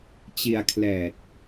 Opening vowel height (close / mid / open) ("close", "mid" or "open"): close